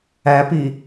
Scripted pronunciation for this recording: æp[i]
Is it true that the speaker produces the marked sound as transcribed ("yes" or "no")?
yes